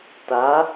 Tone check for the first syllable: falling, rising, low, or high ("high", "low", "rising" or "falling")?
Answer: rising